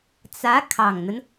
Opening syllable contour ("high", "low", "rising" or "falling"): rising